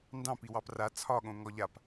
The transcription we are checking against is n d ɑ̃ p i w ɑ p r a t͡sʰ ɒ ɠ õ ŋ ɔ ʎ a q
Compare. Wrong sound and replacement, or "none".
q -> p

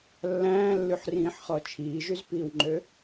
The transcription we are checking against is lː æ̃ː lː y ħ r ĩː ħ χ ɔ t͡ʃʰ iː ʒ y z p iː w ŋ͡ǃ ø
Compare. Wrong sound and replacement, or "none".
none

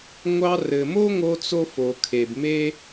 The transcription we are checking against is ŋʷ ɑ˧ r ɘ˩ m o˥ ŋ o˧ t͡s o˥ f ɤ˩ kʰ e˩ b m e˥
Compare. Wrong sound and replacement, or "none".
ɤ˩ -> o˩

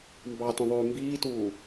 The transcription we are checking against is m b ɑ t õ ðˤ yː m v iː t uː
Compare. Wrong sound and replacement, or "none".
v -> b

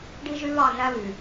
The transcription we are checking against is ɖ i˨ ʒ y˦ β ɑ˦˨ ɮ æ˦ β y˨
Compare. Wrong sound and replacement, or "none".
i˨ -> i˦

